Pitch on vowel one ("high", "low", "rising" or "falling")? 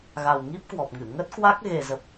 low